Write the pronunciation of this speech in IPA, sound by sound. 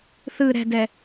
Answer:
θ ɯ ɾ ɛ̤ d ɛ

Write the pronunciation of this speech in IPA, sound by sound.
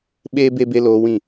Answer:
ɓ eː˦ b e˦ b e˦ l oː˦ w ĩ˦˨

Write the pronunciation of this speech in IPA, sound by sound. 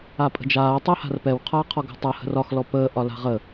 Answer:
a pʼ ə̤ d͡ʒ aː tˤ əː h a̤ r p ɛ w qʰ aː qʰ ɔ ɡ a̤ tˤ a h ə̤ r ɒ x l ɔ p əː ʔ ɒ l a̤ ʁ ə

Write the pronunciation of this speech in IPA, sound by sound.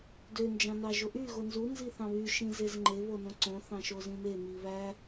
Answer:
d ø n d͡ʒ ɑ̃ n ɑ ʒ o ʔ y ɣ o n z u n z i θ ɑ̃ β y ʃ ĩ z e z ŋ͡ǃ e β o n õ ǀ õ θ ɑ̃ ʃ o z ĩ m e m i β æ

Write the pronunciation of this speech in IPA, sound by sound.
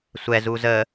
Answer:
sʷ ɛ z u z ə

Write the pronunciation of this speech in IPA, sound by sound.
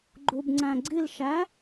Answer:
ɡ͡ǃ u b ŋ͡ǀ æ̃ ɡ͡ǀ i l ʃ æ

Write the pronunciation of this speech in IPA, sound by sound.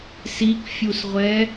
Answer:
s i k fʲ u s ʁʷ ɛ

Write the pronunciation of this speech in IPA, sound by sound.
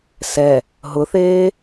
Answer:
s ɛ | ɦ ʊ θ eː

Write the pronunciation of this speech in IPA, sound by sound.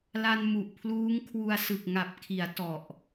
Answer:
l a˧ n m u˨˩ ʔ pʰ l uː˦˥ ŋ kʰ w u˧ a̯ s ɯ˨˩ k̚ ŋ a˨˩ p̚ kʰ i˩˦ a̯ t ɔ˨˩ ʔ

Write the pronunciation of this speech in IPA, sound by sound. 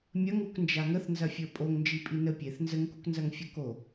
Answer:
mʲ ɐ ŋ u k n d͡ʒ a ŋ ə θ n z ɐ fʲ ə˞ pʼ o ŋ n d͡ʒ i pʼ i n ə pʲ e θ n z ə ŋ k u k n z ɐ ŋ fʲ u k o

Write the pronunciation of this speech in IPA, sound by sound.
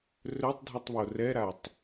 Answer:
r ɵ tˤ dʱ y tˤ β o r ɛ ɾ a tˤ

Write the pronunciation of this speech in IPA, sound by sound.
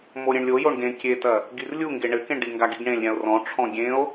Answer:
m o ɾʲ ẽ ɳ lʲ o j o ɳ ɡ ẽ kʲ e t ɐ | ɡ i r lʲ u ŋ ɡ e ɳ ɘ k ẽ ɳ ɖ i ŋ ɡ a ɡ i ɡ ɳ ẽ lʲ ɾʲ ã o̯ r ɔ̃ ʈ͡ʂʰ ɔ̃ ɡʲ ẽ o̯

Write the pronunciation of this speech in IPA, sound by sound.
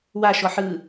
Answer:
w a ʃ ɔ ħ ɯ

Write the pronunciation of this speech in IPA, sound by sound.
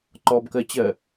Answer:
ǃ ɔ b k ɜ t͡ɕ ɜ

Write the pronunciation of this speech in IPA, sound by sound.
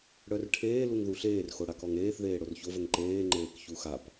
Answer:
ɽ œ r ʈʰ eː l u ŋ ð u ɬ eː r x o ɽ a k ɔ ŋ eː θ ð eː ɽ o r ç o v ə ŋ ǃ eː ŋ͡ǃ eː k ç u x a p

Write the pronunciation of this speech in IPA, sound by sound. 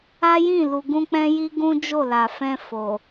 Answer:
a˦ j ĩ˦˨ l u˨ ɡ ũ˧ k͡p ɛ̃˦ j i˦ ɡ ũ˦ d͡ʒ o˦˨ l a˨ f ɛ̃˧ f o˨

